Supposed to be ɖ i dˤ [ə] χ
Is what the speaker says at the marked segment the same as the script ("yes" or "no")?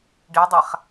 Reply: no